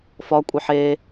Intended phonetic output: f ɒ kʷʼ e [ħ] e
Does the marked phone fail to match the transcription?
no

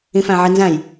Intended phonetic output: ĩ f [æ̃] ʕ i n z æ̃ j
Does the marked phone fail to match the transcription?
no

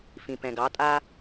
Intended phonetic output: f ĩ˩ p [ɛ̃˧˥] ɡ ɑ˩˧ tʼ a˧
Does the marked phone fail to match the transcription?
yes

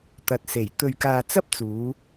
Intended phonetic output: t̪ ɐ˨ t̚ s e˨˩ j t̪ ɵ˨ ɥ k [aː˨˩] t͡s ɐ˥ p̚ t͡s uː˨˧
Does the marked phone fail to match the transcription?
yes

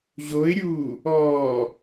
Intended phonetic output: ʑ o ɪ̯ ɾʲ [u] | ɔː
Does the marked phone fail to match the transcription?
yes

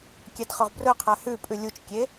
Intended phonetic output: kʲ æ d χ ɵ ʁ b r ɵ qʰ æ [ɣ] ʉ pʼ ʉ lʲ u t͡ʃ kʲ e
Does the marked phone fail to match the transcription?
yes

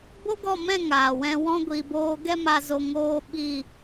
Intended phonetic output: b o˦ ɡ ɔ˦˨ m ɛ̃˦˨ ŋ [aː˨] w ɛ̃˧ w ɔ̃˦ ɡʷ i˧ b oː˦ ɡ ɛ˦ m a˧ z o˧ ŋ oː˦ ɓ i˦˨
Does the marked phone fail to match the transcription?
no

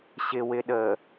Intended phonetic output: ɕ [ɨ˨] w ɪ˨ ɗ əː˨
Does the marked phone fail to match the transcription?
yes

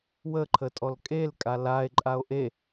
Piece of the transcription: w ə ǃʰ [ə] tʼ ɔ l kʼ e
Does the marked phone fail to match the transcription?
no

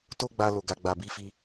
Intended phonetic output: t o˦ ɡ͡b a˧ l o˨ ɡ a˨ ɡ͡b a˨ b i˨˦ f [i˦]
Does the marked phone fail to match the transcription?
yes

